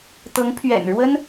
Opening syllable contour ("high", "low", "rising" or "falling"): rising